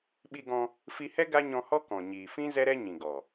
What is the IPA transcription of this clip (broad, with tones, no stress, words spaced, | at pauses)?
ɓi˧ɡɔ̃˧ | fi˧hɛ˦ ɡa˦ɲɔ̃˧hɔ˦ kɔ̃˨ɲiː˨fĩ˦ zɛ˦ɾɛ˦ɲĩ˨ɡɔ˨